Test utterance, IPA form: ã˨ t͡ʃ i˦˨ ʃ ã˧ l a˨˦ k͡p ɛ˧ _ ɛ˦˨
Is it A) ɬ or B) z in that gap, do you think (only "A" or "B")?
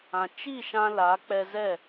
B